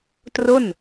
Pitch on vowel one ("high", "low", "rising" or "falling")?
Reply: falling